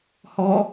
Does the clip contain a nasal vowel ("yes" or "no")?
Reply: no